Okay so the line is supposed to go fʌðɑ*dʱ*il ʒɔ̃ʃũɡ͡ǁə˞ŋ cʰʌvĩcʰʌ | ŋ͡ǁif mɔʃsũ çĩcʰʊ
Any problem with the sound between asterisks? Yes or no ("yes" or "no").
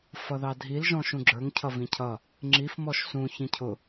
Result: no